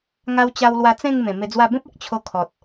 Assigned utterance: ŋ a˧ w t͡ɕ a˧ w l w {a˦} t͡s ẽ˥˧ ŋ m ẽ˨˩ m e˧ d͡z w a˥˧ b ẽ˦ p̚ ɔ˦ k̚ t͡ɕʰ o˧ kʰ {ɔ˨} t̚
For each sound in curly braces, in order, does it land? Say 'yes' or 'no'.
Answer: no, yes

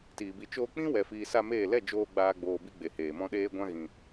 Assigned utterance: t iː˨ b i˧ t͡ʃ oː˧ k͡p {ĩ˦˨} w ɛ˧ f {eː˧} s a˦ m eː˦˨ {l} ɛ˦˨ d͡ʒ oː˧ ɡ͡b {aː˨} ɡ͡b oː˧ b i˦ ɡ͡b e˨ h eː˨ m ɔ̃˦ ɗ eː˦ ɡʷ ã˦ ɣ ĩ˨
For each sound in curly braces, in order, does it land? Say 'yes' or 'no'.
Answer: no, no, yes, no

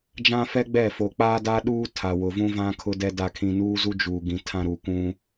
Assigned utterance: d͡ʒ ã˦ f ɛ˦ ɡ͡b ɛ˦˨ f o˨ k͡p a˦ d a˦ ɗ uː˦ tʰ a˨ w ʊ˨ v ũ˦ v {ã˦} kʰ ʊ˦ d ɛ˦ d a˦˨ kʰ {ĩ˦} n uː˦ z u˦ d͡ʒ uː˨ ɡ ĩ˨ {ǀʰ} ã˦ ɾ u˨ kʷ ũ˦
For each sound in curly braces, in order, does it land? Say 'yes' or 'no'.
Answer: yes, no, no

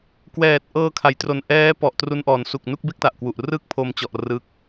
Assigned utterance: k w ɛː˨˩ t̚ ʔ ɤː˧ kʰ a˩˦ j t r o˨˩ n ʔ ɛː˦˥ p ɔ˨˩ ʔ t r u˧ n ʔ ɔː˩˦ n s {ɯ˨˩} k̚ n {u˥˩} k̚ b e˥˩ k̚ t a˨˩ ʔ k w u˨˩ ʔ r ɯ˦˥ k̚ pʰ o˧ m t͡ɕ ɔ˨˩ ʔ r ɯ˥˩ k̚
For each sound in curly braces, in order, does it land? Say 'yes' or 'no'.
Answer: no, yes

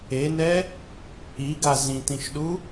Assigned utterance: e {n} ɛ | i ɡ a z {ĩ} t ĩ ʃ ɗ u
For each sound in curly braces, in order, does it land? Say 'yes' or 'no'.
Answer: yes, yes

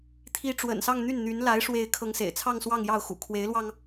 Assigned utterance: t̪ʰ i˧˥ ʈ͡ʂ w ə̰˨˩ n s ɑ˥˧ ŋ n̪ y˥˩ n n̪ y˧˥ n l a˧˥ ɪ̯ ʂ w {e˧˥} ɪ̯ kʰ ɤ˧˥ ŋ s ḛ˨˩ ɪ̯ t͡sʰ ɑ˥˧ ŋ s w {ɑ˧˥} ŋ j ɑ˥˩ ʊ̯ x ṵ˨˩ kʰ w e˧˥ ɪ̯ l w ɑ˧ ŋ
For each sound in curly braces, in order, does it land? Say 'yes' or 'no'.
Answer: yes, no

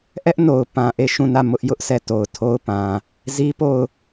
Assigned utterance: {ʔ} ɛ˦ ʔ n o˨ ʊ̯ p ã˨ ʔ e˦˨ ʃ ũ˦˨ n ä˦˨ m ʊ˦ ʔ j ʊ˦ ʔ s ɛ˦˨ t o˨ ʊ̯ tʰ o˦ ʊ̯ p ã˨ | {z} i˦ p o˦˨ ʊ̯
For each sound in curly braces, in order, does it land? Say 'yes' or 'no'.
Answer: yes, yes

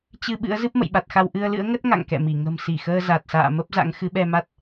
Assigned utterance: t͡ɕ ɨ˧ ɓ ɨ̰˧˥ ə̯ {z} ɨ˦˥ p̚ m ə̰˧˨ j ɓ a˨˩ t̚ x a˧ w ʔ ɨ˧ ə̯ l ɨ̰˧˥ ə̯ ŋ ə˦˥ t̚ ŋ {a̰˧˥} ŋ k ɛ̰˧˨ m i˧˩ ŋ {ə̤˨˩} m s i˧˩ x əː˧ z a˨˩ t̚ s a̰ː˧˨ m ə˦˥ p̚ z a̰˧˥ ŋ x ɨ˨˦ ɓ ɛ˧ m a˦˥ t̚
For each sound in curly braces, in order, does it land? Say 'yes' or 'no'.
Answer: yes, no, yes

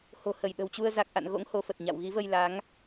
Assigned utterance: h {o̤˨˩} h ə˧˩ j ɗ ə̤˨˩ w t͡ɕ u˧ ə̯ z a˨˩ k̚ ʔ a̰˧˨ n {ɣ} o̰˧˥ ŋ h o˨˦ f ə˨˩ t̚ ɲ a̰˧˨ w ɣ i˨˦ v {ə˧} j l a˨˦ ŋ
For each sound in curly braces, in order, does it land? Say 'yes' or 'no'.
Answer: yes, yes, yes

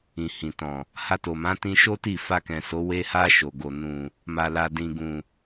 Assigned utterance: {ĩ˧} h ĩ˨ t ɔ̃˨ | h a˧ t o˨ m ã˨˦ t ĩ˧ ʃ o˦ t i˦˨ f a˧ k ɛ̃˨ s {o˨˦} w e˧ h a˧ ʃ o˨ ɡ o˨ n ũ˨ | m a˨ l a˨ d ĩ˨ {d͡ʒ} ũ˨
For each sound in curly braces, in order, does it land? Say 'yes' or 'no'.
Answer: no, yes, no

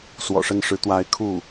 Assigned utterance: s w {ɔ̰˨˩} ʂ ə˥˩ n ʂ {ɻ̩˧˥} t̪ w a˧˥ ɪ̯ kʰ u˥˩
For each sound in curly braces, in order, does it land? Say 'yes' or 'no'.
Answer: yes, yes

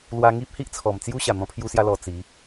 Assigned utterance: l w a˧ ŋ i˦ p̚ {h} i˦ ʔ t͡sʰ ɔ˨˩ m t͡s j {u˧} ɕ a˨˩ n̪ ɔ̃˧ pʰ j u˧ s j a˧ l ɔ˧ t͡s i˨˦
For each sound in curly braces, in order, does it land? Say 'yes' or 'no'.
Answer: yes, no

